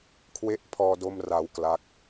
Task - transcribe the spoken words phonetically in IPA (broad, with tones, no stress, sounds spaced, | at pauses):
kʰ w e˥˩ ʔ pʰ ɔː˧ d o˧ m r a˩˦ w k l a˦˥ k̚